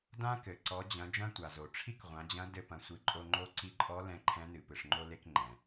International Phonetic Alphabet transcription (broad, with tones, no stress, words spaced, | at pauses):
dã˥kɘ˩ ǀɔ˩˧d͡ʑɐ̃˩˧ d͡ʒɐ̃˥tʷa˩zo˩ ʈ͡ʂʰi˥kʁʷã˩˧d͡ʑɐ̃˧˥dɘ˧ pɐ̃˩˧sʷɨ˩˧ǃʼo˧ ŋ͡ǃo˧˥ ǀi˧ǃʼɔ˧˥ lɛ̃˧ ǃʰɛ̃˧˥nɨ˩ pɨ˩ʂŋ͡ǃo˧le˧k ŋ͡ǃɛ̃˩